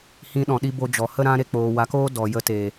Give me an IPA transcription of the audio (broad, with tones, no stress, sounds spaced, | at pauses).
h ĩ˧ ɗ ɔ̃˨ ɗ i˧ b o˧ d͡ʒ ɔ˨ h ə˦ ɾ ã˦ ɾ e˧ k͡p oː˨ w a˨˦ k oː˦ d ɔ˨ j ə˧ t eː˨